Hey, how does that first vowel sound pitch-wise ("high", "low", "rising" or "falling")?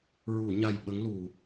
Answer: low